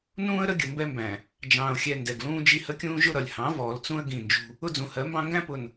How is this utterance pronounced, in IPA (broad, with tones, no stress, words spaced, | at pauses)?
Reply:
nũː˦ə̯ɾə˦ ɡʲə˨ mbɛ˦mbæ̃˨ | d͡ʒɑ̃ː˨ʊ̯xʲɛ˨ ndɛ˨ɡlũː˦d͡ʒi˦ hə˦kʲũː˦ ʒʊ˦ɾʌ˨lʲ hɑ̃˨˦vɔː˨lt͡sũ˦ə̯ ɡĩ˦˨nd͡ʒṳ˦ | ʊ˦d͡zũ˨hɜ˨˦mbɑ̃˦ ŋɡæ̃˦pʊ˨n